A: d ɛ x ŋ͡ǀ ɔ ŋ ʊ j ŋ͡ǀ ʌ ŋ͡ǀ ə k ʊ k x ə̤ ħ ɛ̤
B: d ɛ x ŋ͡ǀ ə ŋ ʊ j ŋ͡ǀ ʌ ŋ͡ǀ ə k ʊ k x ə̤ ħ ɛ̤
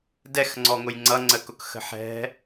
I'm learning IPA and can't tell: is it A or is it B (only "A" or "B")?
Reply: A